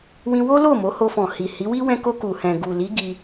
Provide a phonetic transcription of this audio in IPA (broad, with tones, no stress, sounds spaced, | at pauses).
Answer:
w ĩ˧ w o˦ l o˦˨ m o˨˦ h o˧ f ɔ̃˨ h i˨ h i˨˦ w i˦ w ɛ̃˧ k o˧ k u˨ h ɛ̃˨ ɡ u˨ l i˨˦ ɡ i˧